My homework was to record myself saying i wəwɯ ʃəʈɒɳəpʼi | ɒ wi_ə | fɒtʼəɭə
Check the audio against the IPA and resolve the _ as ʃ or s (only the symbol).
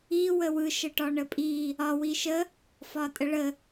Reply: ʃ